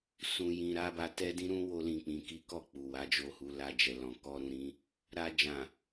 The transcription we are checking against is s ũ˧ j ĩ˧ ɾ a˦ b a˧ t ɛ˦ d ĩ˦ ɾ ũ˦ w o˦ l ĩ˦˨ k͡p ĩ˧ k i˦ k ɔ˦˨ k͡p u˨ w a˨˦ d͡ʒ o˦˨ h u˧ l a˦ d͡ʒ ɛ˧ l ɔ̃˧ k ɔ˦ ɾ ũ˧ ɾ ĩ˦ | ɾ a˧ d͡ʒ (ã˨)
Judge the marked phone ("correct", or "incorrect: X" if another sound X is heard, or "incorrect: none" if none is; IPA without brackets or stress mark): correct